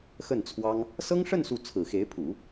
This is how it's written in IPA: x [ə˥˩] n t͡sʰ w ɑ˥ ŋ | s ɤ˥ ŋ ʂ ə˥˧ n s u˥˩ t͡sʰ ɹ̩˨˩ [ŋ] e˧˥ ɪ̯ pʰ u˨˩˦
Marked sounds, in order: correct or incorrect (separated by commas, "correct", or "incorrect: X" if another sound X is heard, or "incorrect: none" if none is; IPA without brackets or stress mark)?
correct, incorrect: x